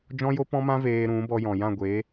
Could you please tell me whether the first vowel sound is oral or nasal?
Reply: nasal